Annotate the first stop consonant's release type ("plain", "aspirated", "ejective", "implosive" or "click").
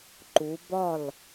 click